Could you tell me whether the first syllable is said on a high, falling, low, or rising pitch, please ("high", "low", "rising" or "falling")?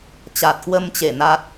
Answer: low